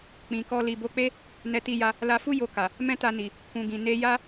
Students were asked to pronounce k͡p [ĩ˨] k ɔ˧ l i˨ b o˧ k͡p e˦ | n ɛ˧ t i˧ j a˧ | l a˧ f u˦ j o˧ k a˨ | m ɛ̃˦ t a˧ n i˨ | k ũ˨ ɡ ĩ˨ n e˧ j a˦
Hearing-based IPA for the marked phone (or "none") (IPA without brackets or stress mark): ĩ˨